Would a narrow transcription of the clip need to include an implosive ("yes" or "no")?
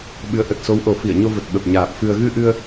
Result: yes